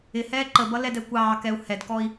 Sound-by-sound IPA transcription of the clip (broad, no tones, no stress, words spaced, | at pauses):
ɪhɛː ǃəbʌlɛdɛ kʷɑːkɛu̯ hɛdkɔi̯